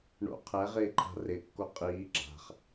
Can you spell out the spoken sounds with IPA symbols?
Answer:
ɳ o̰ qʰ ɛ ʁ ɪː ǃʰ a̤ r ɪ kː o qʼ iː ɡ͡ǁ a̤ χ

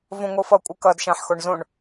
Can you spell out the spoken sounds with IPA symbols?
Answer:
v õ ŋʷ ɯ f ʌ kʷʼ ɯ k ʌ d ʃ ã ħ x o ɳ z õ ɳ

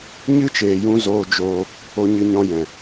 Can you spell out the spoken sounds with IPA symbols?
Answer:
ɲ ɨ˦ t͡ʃ eː˨ j ũ˧ z oː˧ d͡ʒ oː˧ | o˧ ɲ ɨ˧ ɲ ɔ̃˧ j ɛ̃˨

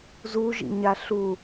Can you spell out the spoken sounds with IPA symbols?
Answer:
z u ʒ ḭ ɲ a ɬ u

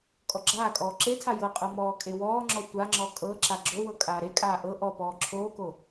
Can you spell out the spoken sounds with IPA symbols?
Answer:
kʼ ɔ ɡ͡ǁ aː kʼ ɔː ǁ e tʰ a j ɤ qʼ ɤ m ɔː kʼ e w ɔː ŋ͡ǁ ɔ tʷ a ŋ͡ǁ ɔ kʼ ɤ ǁ a ɡ͡ǁ o w ɤ kʼ aː ɾ e kʼ aː ʔ ɤ ʔ ɔ p ɔː ǁʰ oː k o

